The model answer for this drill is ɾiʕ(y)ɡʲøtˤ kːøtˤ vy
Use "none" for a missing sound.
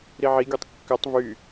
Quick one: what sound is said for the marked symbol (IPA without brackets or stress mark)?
i